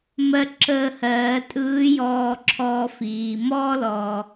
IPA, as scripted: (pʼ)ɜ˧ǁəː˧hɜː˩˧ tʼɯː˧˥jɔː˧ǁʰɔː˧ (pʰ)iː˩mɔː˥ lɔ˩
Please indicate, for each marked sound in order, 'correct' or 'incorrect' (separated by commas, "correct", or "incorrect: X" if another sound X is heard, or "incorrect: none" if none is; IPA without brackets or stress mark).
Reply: incorrect: m, incorrect: f